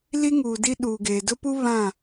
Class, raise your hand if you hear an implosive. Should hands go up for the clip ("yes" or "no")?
yes